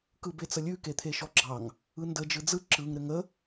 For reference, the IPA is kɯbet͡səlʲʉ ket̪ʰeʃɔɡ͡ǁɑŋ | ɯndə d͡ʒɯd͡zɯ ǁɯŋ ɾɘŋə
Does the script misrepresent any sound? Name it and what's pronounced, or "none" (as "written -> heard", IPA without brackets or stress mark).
none